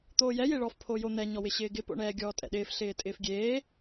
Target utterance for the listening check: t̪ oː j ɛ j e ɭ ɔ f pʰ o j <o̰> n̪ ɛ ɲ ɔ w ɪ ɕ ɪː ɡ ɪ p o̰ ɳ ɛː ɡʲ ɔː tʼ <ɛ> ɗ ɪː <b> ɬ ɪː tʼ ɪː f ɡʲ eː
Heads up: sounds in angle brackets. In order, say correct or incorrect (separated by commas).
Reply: incorrect, incorrect, incorrect